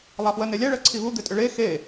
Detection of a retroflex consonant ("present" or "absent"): present